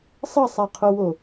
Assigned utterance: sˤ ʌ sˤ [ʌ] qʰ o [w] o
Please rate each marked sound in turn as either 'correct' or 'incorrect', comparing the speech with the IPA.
incorrect: a, correct

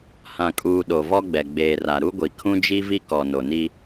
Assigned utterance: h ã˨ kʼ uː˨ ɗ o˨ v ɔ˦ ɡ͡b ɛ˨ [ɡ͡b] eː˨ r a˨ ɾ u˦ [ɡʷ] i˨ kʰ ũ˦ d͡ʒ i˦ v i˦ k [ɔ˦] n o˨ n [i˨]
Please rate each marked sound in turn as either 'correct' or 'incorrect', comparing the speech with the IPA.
correct, correct, incorrect: ɔ˨, incorrect: i˦

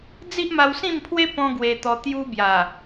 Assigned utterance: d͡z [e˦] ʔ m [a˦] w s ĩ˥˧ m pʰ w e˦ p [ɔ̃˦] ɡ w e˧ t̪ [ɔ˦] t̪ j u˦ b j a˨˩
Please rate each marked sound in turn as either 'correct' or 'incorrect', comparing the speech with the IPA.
incorrect: i˦, incorrect: a˧, correct, incorrect: ɔ˧

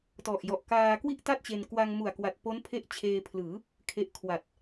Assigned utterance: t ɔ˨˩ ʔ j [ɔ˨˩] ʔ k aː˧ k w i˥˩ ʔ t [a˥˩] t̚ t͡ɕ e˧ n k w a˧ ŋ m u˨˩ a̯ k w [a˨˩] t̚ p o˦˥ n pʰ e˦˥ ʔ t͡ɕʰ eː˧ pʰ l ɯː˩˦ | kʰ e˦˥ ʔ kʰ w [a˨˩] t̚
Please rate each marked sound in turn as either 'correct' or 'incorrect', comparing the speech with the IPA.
correct, correct, correct, correct

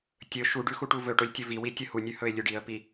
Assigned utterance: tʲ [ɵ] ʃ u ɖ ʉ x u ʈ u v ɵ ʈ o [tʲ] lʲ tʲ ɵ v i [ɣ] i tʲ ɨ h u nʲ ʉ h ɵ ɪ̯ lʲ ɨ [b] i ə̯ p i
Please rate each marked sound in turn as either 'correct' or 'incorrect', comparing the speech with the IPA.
correct, incorrect: none, incorrect: w, incorrect: ɖ

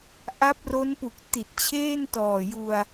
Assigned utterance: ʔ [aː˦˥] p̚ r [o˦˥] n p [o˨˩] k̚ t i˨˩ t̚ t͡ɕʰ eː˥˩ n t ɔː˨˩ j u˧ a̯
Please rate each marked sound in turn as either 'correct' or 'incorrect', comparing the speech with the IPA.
incorrect: a˦˥, correct, incorrect: u˨˩

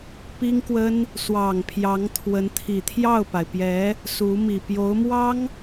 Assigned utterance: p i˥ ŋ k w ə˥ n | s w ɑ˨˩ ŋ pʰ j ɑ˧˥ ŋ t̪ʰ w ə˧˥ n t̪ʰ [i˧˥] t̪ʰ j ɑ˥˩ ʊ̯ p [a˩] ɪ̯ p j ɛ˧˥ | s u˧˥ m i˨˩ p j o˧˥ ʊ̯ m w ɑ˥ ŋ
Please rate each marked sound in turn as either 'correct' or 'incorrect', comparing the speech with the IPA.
incorrect: i˨˩, correct

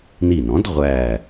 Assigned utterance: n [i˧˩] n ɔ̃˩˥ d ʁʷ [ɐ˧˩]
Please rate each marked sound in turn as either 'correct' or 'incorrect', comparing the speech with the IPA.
correct, incorrect: æ˧˩

